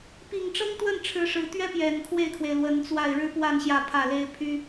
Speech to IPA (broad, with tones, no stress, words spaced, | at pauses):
pi˨˩ŋʈ͡ʂɤ˥ŋt̪wə˥˩n ʈ͡ʂʰɻ̩˧˥ʂɻ̩˧˥ t̪ɥɛ˥pjɛ˨˩n kʰwe˥˩ɪ̯kʰwe˩ɪ̯ lwə˧˥nt͡swa˥˩ɪ̯ ɻɻ̩˥pwa˥˧n ɕjä˥˧pʰä˥˩le˥ɪ̯ pʰy˥